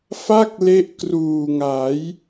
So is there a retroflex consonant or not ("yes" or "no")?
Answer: no